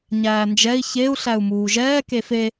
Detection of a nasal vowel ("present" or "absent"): absent